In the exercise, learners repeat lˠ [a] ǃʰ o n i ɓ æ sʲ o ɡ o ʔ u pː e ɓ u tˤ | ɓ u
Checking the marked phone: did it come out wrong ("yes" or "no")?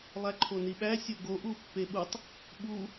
yes